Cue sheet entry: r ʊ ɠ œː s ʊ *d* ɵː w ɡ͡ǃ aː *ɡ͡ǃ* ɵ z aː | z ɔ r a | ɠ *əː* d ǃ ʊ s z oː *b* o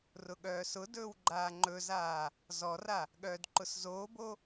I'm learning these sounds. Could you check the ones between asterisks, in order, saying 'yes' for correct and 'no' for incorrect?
yes, no, no, yes

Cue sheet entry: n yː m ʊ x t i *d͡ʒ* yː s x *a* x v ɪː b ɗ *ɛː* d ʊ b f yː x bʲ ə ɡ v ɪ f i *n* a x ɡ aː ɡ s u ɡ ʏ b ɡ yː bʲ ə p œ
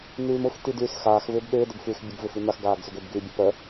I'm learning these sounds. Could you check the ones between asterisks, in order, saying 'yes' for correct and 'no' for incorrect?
no, no, no, yes

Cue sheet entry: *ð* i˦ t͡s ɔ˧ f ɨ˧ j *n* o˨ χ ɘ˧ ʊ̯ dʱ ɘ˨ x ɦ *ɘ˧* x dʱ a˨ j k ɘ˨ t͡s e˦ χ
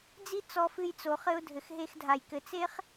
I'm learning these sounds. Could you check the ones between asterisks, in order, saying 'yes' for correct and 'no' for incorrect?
no, no, no

